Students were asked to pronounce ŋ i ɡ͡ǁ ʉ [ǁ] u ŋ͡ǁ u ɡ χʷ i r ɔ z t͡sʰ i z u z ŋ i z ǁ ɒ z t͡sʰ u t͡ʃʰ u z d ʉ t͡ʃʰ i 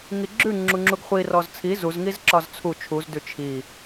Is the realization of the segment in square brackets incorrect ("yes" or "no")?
yes